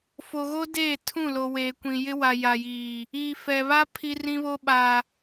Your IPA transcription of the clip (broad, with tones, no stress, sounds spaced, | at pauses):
f o˨ ɣ o˦ d eː˦˨ tʰ ũ˦˨ l o˨ w eː˨ kʷ ĩ˨ j ɪ˦ w a˨ j a˨ j iː˨ | iː˨ f ɛ˨ β a˦ pʰ i˦ r ĩ˦ β o˦ ɓ a˨